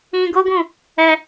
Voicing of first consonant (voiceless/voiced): voiced